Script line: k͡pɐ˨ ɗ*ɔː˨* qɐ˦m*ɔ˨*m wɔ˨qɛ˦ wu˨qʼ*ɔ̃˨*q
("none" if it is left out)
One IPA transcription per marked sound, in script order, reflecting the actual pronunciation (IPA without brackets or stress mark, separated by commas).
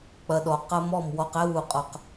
ɔ˨, ɔ˦˨, ɔ˨